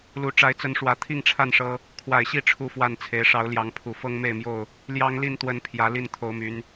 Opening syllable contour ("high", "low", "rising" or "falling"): rising